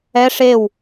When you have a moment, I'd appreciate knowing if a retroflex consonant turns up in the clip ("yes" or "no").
yes